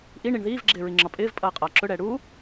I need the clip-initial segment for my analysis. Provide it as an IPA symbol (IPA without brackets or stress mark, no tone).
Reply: ʔ